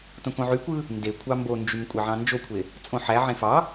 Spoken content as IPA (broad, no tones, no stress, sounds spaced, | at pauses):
t õ k õ ʕ y kʷ ɯ | n d e kʷʰ ɑ m b o n d͡ʒ y m kʷʼ e ʕ ɑ̃ n d͡ʒ o kʷʰ e | t͡sʼ õ ħ æ ʕ ẽ f ɑ